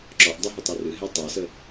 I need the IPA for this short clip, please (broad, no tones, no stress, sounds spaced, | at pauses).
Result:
ǁ ɔ ʔ dˤ ɵ ɦ ʊ tˤ e r ɨ ɦ e tˤ e s ə